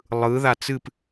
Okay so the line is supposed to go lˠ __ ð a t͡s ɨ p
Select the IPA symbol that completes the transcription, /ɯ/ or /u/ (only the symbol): ɯ